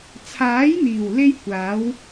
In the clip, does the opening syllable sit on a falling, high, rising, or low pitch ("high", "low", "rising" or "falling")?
rising